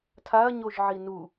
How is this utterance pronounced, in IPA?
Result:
tʰaɐ̯ɲoʒʕi nu

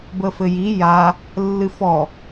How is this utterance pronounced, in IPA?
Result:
bəfɘji ja | lːɨfɔ

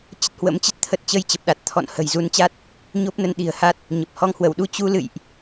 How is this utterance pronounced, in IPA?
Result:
t͡ɕə˦˥t̚hwə̰˧˥mt͡ɕə˦˥t̚ t̪ʰə˦˥t̚ t͡ɕə˧jt͡ɕə˨˩p̚ɗa˨˩t̚ t̪ʰɔ̰˧˨nhə̤˨˩j zu˨˦nt͡ɕa˦˥t̚ | ɲo˦˥p̚nə˨˦n ɗi̤˨˩ə̯ha˦˥t̚ | ɲə˨˩p̚ hɔ˧ŋhwə˧˩wɗu˧ t͡ɕu˧lɨ̰˧˨jʔ

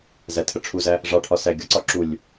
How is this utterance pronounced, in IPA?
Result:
zætʰəʈ͡ʂʰuzæ | ʐɑʈʰɒ sæɪ̯ɡʲɒǀɒ ǁulʲ

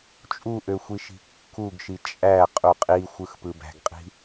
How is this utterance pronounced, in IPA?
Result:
t͡ʃʼuʔøxʷiʃi̤ kːuɡʃi t͡ʃʼæqʼu qʼixʷɯxpɯ bæ̤ɡqʼi̤

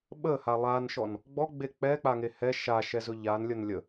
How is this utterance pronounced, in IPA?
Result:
ɓəha lˠanʃɔn | ɡ͡bɔɡ͡be k͡pɛk͡paŋe hɛ ʃaʃɛzɵ ʎanlʲən lʲə

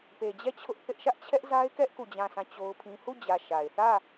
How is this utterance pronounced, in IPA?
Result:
pe˨d͡ʑɛ˦˨ t͡ɕʰʊ˦ʔ θɪ˦ʔ ʃä˦ʔt͡ɕʰɛ˦ʔza˦ɪ̯kɛ˦ʔ ku˦˨d͡ʑã˦˨sʰã˦˨ t͡ɕo˦ʊ̯pʰĩ˦ hu˦˨d͡ʑä˨ ʃa˨ɪ̯ θä˦˨

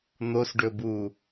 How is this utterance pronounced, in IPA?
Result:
n̪osɖɵbuː

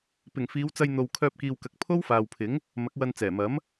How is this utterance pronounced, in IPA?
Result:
pɪ˨˩ŋfiː˨˧wt͡sɐ˧j n̪o˧w kʰœː˧p̚kiː˨wkɐ˨˥k̚ pʰo˥wfaː˨wpʰɪ˨˥ŋ | mɐ˨˥k̚wɐ˧n t͡sɛː˨˩mɐ˨˥m

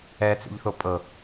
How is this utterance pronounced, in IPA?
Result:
ɛt͡sḭʎθo pʼɤ

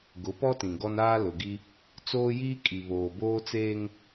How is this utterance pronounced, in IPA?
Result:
ɡʊ˨˦pɔ˦tĩ˨ ɡɔ˦naː˦ lʊ˨ɡi˦ | t͡soː˦jiː˦ kʼi˨βoː˨ boː˦t͡seː˦ŋ

